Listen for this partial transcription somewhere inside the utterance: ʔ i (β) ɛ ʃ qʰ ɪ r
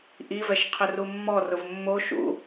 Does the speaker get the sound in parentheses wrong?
yes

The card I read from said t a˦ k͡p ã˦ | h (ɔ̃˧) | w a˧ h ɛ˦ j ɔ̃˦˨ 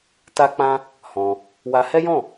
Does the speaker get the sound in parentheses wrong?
no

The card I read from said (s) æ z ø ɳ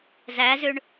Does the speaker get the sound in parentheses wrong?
yes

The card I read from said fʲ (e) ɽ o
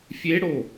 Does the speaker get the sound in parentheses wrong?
no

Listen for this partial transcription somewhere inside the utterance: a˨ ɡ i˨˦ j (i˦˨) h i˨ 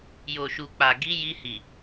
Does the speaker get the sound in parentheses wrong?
yes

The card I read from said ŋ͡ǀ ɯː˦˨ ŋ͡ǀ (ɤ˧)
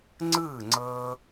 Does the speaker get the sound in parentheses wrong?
yes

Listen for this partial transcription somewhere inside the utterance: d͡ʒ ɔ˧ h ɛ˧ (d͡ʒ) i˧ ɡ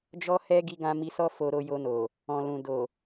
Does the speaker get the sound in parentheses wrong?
yes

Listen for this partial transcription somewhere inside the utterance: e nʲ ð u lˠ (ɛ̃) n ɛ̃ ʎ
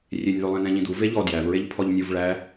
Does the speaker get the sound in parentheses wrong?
yes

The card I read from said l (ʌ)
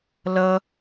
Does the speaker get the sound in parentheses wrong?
no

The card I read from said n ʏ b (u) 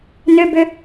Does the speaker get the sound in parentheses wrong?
yes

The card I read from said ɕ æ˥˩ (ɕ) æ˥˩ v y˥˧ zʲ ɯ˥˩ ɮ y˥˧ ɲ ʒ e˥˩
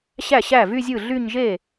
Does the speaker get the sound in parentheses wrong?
no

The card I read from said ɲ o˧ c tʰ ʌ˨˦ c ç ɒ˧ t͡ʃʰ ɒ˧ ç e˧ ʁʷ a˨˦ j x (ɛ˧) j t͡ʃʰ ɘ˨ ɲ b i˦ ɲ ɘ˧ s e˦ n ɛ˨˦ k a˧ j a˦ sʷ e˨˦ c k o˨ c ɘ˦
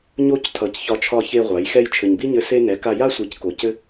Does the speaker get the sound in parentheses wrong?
yes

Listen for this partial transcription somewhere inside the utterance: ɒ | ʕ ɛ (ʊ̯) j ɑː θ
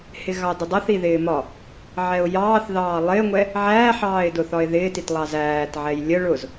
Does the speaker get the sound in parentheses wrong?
no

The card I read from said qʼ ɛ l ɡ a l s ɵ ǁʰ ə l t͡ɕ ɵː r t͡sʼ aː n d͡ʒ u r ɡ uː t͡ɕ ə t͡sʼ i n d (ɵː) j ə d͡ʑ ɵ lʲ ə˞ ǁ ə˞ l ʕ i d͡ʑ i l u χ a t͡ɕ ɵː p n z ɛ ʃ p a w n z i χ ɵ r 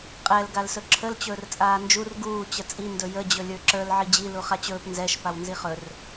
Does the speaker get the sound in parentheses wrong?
yes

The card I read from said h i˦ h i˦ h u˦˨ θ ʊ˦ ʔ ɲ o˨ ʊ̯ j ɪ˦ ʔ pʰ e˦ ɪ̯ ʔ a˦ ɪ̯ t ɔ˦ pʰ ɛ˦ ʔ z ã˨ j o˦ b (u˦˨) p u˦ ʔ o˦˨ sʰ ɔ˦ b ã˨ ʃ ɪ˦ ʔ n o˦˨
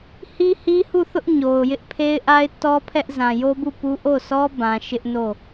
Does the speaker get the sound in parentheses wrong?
no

